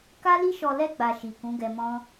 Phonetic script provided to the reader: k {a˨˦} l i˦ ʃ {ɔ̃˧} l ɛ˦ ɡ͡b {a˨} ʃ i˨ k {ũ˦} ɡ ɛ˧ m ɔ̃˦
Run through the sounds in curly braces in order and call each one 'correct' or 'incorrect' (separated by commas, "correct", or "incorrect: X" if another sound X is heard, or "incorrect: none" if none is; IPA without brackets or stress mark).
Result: incorrect: a˦, incorrect: ɔ˧, incorrect: a˧, incorrect: ũ˨˦